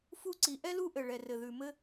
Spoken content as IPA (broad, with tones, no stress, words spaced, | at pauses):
fu˥ ǀi˩ʔɛ˥lu˥ʔɘ˩ ɭɛ˩rɘ˩ðʉ˩ mɘ˥